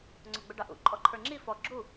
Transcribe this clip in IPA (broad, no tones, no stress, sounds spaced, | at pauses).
ŋ͡ǀ ɔ ɡ͡b ʊ ɖ ɑ ʔ ṵ ǃʼ ɔ ǃʰ ə˞ ŋ͡ǁ i f ɔ ɡ͡ǁ u